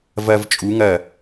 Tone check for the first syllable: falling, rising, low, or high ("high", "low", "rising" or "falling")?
high